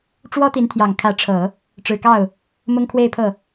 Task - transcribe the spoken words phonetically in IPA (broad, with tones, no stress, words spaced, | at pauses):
ʈ͡ʂwɔ˥t̪i˧˥nt̪ʰjɑ˨˩ŋ kʰä˧˥ʈ͡ʂʰɤ˨˩˦ | ʈ͡ʂɻ̩˨˩kɑ˥˩ʊ̯ | mʊ˥ŋkʰwe˥˧ɪ̯pʰɤ˥˩